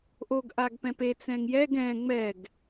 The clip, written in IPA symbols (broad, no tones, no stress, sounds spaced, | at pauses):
ʔ o ɡ ʔ a ɡ p ɛ̃ p e t͡s ɛ̃ ŋ j ɛ ɡ ɛ̃ ŋ͡m ɛ ɡ